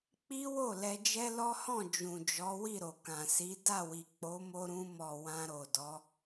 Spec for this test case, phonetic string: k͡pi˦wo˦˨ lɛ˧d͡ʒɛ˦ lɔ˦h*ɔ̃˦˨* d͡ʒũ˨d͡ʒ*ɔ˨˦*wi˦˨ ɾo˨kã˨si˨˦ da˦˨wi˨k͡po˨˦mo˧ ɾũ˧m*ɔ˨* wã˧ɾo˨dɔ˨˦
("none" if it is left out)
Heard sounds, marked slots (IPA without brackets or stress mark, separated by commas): ɔ̃˦˨, ɔ˨˦, ɔ˨